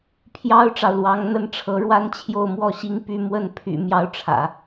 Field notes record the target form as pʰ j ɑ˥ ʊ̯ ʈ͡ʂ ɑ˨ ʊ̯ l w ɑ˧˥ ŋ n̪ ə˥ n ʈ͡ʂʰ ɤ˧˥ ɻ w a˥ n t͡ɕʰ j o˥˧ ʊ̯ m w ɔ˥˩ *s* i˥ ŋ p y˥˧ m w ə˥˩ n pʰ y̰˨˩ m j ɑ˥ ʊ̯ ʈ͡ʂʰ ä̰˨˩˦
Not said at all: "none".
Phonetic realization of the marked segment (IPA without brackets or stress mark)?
ɕ